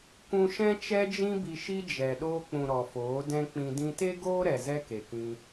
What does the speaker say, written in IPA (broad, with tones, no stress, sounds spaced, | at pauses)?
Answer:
kʷ ũ˧ ʃ ɛ̃˦ t͡ʃ ɛ˧ d͡ʒ ĩ˧ b i˨ ʃ i˦ d͡ʒ ɛ˨ ɗ oː˧ k͡p ũ˨ ɾ ɔ˨ f oː˨˦ d ɛ̃˦ k͡p ĩ˧ d ĩ˧ t e˦ ɡ oː˦ ɾ ɛ˨ z ɛ˦ k e˨ k ĩ˧